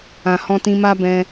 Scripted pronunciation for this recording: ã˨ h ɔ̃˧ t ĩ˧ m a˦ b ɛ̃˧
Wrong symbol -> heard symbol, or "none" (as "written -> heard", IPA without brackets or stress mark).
none